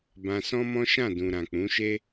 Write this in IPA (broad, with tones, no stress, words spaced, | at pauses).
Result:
bã˧sɔ̃˦mɔ̃˦ ʃã˦˨dũ˨ ɾã˨k͡pũ˨˦ʃe˦